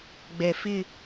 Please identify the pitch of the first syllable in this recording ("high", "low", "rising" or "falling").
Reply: low